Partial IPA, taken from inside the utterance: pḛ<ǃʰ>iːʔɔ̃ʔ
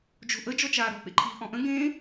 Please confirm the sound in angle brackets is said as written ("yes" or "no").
yes